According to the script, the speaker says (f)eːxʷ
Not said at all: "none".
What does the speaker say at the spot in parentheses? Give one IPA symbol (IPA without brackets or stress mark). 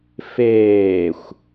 f